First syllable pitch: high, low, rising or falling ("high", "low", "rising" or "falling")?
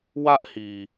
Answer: high